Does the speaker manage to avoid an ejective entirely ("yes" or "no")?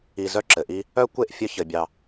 yes